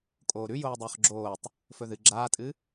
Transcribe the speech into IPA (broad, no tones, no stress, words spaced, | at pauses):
kʼoːɾʉ joːdˤɵːχɡ͡ǁoːtˤ | fɵðɨ ɡ͡ǁaːtʼɨ